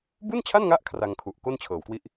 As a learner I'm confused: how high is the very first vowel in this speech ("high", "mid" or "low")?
high